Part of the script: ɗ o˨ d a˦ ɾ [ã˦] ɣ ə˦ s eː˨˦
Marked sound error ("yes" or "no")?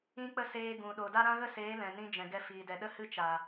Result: no